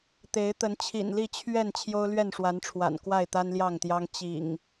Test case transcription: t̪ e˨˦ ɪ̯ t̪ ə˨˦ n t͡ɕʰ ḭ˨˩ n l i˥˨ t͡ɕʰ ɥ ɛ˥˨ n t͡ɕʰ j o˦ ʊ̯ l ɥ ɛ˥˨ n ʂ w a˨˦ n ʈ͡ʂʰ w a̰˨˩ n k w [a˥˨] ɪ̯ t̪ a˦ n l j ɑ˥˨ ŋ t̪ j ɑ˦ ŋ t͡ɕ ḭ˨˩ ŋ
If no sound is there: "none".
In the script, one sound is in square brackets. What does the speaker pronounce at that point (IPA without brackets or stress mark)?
a˥˨